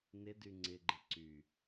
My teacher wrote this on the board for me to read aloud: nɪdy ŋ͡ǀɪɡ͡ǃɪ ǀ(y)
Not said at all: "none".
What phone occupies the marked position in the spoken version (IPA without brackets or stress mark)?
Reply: y